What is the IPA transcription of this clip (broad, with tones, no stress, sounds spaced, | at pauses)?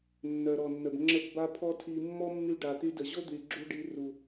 nː œ˨ ɾ ɔ˨ nː ə˨ b ŋ͡ǁ ə˦˨ p b a˦ pʰ ɔ˦ tʰ i˧ mː ɔ˦ mː y˧ ɖ a˨ t̪ y˧ d ə˨ ʑ o˦ d̪ y˨ ɡ͡ǁ u˧ ɖ i˧ r u˨